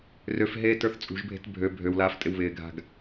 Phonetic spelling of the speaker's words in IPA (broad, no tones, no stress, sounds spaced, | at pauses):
r ø f ɦ eː t ə˞ θ t͡sʼ ṳ ʒ bʱ e̤ t bʱ ø bʱ ø w l aː f tʼ ɪ w β ɪː ɡʱ a̤ ɡ